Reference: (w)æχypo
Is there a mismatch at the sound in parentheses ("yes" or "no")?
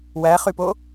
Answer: no